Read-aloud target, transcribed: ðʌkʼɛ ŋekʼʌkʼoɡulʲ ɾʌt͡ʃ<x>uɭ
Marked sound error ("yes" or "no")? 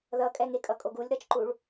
yes